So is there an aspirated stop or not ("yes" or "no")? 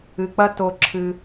yes